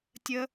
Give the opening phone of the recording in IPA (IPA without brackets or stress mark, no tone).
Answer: tʲ